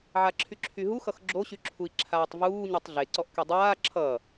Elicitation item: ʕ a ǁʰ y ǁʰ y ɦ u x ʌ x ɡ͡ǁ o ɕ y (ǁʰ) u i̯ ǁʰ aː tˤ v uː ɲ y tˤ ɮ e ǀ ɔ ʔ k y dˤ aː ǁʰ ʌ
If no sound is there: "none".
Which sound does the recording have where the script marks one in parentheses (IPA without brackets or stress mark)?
ǁʰ